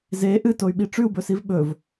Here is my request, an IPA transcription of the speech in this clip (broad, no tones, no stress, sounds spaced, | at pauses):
z e ʔ ɨ t o y̯ ɓ i ʈ͡ʂ ʉ u̯ b ɵ s i v ɓ ɵ v